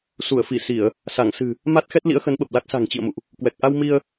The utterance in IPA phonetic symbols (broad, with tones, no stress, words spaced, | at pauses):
su˧˩ə̯fi˧˩ si˧˩˨ə̯ | sa˧˩ŋsɨ̤˨˩ | ma˦˥t̚xɛ˦˥t̚ lḭ˧˥ə̯xə˨˦nɓə˨˩p̚la˦˥k̚ sa̤˨˩ŋ t͡ɕḭ˧˨ə̯mṵ˧˨ʔ | kwɛ˨˩k̚ ʔa˧w mi˧ə̯